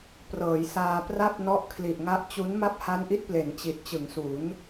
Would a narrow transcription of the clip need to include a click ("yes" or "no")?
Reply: no